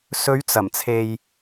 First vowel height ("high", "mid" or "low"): mid